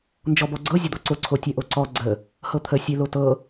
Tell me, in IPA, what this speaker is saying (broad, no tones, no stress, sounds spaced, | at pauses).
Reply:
n d͡ʒ ɔ b ɔ ɡ͡ǀ ɤ zʲ ə d̪ ɔ ǀ o ǀʰ o tʲ ɛ ʔ o ǀ ɔ ɡ͡ǀ ə | h ɤ t̪ʰ ə sʲ e l o t ɤ